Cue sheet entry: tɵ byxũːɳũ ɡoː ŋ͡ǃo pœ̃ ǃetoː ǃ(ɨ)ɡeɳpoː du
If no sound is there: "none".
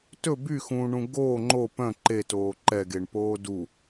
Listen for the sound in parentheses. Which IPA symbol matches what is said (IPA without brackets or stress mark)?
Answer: ɛ